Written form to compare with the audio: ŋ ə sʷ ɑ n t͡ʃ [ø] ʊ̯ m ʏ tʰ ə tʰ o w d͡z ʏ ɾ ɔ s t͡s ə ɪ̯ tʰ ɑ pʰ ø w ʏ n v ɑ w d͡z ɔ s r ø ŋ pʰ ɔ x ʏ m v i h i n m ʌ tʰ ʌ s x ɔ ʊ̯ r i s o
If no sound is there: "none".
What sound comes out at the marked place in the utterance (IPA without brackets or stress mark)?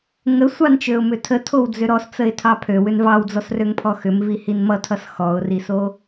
ø